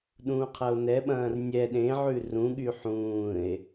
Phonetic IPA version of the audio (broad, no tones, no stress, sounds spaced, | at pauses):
ɗ ũː qʰ ɐ o̯ n ɛ ɓ ɐ̃ː r nʲ ɛ ɗ ẽ ʕ ʉ r ũ ɠ y ħ ũː e̯